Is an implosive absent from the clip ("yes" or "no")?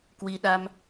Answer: no